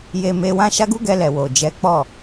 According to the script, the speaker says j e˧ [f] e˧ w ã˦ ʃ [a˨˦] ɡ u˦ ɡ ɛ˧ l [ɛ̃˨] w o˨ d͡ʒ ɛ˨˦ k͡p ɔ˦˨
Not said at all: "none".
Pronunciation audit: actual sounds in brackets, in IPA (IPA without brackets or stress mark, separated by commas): m, a˦, ɛ˨